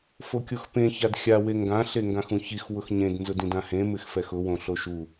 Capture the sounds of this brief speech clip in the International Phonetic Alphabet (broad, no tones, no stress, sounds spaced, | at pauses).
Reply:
f o kʲ o x p ẽ ç a d xʲ a w e ŋ ɡ ã ɬ e ŋ ɡ ã x ũ ç i x w ʊ x ɲ ẽ d n z ʊ d ĩ d ã h ẽ m ɪ x f ɛ x ʊ w õ ɬ o ʃ u